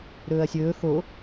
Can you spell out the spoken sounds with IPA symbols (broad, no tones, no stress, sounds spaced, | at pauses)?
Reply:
ɾ ɵː ɐ̯ sʲ ɵː x o